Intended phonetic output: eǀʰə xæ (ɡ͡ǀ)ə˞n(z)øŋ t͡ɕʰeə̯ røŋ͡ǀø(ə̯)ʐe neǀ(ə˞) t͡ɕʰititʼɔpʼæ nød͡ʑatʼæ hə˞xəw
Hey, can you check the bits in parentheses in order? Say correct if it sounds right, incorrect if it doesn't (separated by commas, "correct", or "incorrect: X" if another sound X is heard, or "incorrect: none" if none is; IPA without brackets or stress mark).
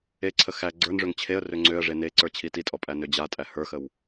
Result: correct, incorrect: ʐ, correct, correct